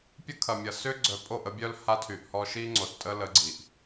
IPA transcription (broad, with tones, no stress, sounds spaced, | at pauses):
pʲ ə˦ kʰ ɐ˨ mʲ ɐ˨ s ʏ˦ ɡ͡ǀ œ˨ pʼ o˦˨ ʔ ə˦ bʲ œ˦ l h a˦ tʰ y˨ ʔ h ɔ˦ ʃ i˦ ŋ͡ǀ o˨ s tʼ ə˦ l ə˨˦ ɡ͡ǀ i˨ ʔ